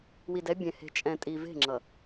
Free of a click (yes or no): no